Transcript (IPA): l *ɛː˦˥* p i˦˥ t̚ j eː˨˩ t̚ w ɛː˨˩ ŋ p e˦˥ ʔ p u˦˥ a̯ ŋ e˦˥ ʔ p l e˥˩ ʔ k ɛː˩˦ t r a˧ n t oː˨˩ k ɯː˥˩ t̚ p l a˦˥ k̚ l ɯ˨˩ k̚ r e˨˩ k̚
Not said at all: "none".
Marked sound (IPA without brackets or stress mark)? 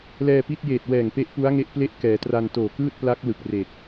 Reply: ɛː˧